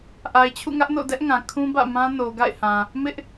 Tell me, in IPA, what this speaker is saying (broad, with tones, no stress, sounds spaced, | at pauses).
ʔ a˨ ɪ̯ t͡ɕʰ ṵ˦˨ ŋ ä˦ ʔ n o̰˦˨ d ɛ˦ ʔ ŋ ã˨ kʰ ũ˦ b ä̰˦˨ m ã˦ n o˨ ɡ a̰˦˨ ɪ̯ h ã˨ | m ɪ˦ ʔ